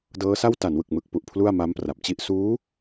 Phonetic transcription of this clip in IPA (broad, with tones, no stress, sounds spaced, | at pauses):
d ɤː˦˥ s a˥˩ w t a˩˦ n w ɯ˨˩ k̚ m ɯ˨˩ k̚ p u˨˩ ʔ pʰ l u˥˩ a̯ m a˦˥ m p r a˨˩ p̚ t͡ɕ i˥˩ ʔ s uː˦˥